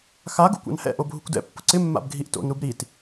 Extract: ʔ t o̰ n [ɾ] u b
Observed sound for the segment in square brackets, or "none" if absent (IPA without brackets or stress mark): ɾ